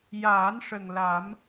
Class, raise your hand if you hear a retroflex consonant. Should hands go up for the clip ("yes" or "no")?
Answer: yes